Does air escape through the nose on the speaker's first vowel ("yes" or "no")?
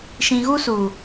yes